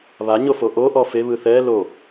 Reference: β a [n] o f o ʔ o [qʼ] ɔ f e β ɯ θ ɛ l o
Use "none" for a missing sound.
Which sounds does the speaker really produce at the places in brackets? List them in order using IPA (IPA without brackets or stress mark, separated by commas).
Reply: ɲ, ʔ